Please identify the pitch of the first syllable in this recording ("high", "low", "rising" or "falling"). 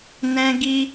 high